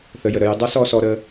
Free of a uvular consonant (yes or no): yes